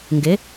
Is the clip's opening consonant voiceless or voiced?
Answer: voiced